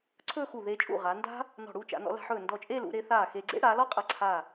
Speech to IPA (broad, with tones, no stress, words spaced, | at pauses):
ǀʰɵː˥˧xu˧˩ðeː˧t͡ʃʼṵ˧˩ ʁa˩˧nda̤˥ | nɔ̤˧˩ɽuː˥˧t͡ʃa̰˩˧ nɔ̰˩˧la̤˧ħɵː˧˩ ndɔ˧˩t͡ʃʼeː˥˧lṵ˩˧ɾe˩˧ θaː˧˩xeː˧ɡ͡ǀḛ˥ ɽaː˩˧lɔ˥ qʼa˧˩ǀʰa˧˩